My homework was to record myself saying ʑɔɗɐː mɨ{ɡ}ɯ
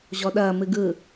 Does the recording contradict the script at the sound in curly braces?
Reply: no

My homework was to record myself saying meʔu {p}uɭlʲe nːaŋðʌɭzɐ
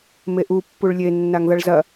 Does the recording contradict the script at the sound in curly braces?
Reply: yes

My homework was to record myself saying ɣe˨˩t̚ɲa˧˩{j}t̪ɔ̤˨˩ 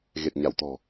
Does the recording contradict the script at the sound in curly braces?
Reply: yes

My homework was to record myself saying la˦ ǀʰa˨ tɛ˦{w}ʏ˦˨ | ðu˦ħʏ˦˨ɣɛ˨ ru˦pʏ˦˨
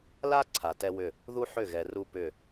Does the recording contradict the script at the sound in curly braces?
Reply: no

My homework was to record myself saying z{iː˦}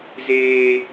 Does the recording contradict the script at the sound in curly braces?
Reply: yes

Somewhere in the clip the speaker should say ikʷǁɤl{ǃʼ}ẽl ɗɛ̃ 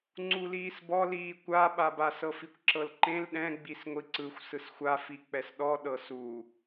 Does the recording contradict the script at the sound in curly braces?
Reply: yes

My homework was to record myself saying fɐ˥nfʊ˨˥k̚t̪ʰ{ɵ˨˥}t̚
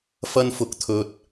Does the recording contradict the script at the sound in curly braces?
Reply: yes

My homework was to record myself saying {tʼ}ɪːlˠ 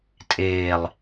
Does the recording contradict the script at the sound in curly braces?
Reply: no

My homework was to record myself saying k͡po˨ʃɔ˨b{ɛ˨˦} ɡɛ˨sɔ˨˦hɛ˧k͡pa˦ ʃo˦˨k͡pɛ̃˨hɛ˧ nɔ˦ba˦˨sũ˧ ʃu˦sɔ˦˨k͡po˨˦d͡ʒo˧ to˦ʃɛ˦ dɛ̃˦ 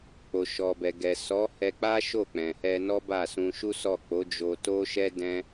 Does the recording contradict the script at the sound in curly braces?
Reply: yes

